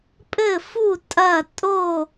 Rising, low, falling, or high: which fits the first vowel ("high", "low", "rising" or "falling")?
falling